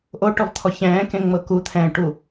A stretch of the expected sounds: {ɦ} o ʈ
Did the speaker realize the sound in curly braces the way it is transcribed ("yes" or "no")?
no